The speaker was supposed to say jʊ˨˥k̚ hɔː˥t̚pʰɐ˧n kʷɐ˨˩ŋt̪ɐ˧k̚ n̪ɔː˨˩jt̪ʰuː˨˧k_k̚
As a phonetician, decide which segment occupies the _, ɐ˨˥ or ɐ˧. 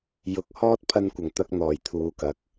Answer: ɐ˨˥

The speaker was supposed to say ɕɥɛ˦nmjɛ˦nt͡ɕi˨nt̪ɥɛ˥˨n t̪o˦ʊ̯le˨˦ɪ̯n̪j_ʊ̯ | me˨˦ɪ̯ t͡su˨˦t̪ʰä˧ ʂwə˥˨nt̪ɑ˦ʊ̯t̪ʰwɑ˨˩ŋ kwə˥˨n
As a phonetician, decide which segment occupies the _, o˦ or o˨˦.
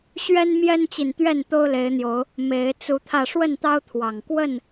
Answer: o˨˦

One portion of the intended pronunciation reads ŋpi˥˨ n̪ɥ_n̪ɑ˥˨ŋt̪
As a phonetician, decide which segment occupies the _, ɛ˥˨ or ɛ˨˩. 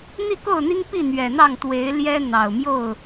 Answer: ɛ˨˩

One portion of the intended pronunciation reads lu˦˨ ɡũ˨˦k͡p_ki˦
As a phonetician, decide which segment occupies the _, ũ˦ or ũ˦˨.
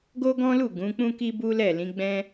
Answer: ũ˦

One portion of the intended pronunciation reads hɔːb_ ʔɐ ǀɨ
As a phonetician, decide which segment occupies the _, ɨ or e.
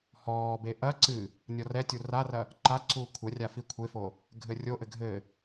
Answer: e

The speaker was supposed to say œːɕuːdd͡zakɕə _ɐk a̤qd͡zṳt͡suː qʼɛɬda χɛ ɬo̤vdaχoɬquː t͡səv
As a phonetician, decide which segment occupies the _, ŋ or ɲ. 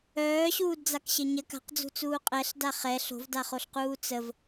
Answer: ɲ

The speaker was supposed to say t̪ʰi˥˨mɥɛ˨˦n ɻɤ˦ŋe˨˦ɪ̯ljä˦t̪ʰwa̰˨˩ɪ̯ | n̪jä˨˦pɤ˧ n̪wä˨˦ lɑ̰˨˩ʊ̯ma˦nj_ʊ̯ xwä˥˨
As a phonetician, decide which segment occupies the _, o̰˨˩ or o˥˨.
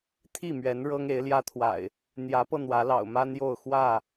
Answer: o˥˨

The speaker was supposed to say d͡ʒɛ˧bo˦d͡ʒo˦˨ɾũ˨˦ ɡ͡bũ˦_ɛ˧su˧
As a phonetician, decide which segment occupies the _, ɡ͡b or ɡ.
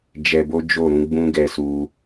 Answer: ɡ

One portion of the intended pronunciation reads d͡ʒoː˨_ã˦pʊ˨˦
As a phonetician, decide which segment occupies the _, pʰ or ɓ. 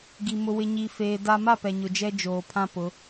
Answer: pʰ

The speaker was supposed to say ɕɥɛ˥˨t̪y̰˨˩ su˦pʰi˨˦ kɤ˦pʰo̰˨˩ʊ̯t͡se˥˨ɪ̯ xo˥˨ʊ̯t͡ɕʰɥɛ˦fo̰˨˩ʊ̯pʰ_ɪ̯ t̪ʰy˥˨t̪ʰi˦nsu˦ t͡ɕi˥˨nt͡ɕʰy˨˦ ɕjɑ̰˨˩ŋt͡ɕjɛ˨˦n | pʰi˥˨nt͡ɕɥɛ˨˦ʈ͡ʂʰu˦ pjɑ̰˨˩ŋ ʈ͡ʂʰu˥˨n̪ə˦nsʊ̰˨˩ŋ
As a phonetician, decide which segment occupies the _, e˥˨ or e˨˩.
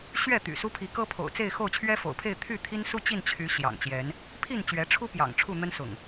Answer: e˥˨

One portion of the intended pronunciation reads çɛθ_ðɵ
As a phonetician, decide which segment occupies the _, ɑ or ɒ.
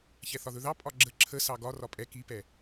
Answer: ɒ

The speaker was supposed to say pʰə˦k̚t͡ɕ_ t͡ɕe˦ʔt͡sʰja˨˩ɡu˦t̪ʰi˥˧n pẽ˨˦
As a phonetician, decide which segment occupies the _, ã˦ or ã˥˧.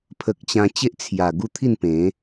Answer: ã˦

